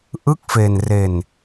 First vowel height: high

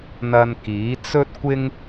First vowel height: low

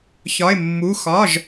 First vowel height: low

